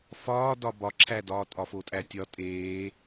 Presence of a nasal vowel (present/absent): absent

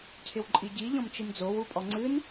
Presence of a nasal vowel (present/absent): present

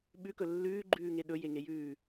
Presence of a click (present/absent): present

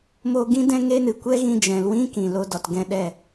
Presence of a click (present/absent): absent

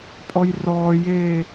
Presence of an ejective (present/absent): present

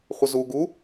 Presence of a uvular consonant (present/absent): present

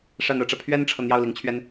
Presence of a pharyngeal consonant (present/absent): absent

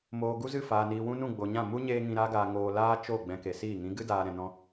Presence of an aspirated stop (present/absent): absent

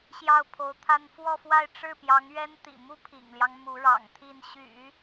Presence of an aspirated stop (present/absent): present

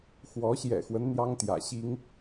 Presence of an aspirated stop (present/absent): absent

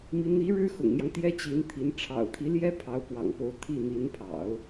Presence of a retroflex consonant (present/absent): present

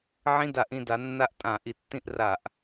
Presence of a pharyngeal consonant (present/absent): present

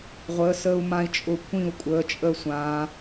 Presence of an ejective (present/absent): present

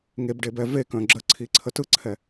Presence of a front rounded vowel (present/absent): present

